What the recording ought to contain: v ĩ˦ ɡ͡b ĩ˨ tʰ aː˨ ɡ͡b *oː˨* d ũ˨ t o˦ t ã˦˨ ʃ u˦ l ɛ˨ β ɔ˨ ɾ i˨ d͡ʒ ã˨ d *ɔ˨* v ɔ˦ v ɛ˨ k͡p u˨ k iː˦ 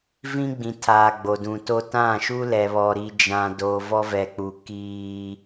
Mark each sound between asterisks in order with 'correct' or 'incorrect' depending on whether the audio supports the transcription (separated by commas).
incorrect, incorrect